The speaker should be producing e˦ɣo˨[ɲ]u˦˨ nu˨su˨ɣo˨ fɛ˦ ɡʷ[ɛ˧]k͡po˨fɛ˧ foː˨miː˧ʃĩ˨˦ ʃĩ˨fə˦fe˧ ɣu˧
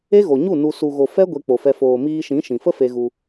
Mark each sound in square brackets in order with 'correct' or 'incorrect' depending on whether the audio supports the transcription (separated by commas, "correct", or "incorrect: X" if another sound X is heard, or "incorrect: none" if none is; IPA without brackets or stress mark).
correct, incorrect: e˧